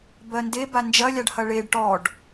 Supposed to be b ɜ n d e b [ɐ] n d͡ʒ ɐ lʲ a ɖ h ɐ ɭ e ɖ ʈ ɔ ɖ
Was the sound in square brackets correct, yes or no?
no